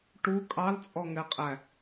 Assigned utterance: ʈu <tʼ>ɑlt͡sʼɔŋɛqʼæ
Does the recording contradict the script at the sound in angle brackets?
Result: yes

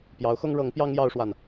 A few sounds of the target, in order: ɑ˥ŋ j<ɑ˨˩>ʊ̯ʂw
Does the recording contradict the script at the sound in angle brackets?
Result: yes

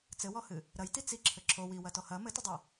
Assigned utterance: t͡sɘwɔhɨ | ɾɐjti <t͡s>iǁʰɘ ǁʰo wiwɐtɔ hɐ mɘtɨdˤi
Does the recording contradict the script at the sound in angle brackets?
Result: no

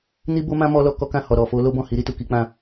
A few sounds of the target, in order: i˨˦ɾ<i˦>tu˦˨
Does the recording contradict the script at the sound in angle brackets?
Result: no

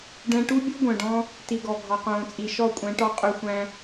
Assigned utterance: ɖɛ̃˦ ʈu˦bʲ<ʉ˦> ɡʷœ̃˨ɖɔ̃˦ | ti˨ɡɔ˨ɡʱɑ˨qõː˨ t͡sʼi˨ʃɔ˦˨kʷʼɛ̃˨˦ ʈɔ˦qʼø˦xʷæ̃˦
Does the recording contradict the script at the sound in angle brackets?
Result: yes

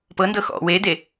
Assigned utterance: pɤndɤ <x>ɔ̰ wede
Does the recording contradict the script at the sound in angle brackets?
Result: no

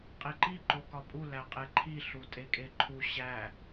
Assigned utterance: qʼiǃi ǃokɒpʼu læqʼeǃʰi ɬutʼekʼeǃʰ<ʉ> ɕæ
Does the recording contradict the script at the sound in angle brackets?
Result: yes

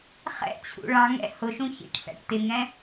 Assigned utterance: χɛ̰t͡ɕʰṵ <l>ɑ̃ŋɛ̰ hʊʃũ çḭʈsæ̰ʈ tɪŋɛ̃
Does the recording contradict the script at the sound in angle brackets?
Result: yes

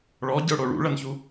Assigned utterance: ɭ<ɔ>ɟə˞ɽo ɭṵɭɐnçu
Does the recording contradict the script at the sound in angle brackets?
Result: no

